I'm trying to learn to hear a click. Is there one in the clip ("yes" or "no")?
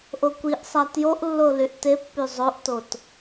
no